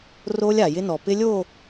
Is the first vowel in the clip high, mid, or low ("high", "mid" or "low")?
mid